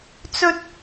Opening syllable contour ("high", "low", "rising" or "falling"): high